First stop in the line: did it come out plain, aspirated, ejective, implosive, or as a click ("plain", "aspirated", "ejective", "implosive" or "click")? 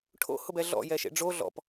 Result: aspirated